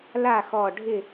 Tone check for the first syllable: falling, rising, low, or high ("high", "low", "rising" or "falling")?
falling